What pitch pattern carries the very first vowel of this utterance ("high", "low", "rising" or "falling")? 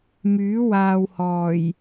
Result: rising